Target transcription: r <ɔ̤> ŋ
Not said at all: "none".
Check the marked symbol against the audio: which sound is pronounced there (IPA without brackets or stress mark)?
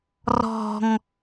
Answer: ɔ̤